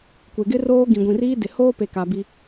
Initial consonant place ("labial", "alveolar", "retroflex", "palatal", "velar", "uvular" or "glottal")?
velar